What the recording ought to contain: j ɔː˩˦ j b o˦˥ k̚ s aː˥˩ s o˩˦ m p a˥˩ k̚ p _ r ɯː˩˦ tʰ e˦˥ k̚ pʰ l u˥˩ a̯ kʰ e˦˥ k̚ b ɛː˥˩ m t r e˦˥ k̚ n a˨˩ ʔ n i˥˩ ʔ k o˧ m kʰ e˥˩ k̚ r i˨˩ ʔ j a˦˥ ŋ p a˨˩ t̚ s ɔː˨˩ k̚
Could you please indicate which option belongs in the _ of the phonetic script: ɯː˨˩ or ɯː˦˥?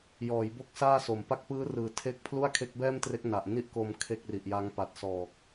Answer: ɯː˦˥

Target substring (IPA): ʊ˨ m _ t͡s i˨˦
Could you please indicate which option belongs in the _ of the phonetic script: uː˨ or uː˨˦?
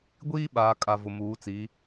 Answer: uː˨˦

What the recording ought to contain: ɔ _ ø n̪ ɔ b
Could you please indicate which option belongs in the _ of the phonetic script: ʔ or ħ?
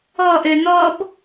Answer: ʔ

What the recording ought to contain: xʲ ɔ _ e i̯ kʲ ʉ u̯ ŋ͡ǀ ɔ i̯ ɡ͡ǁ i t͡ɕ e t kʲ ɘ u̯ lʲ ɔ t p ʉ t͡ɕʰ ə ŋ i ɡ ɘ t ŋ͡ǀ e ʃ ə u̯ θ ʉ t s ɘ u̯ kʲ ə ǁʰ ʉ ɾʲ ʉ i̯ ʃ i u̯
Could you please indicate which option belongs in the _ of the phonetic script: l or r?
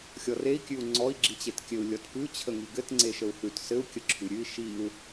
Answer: r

